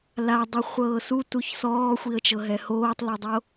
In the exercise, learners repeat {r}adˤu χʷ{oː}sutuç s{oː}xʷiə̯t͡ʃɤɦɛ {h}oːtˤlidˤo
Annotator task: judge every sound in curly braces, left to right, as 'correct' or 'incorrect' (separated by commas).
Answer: incorrect, incorrect, incorrect, correct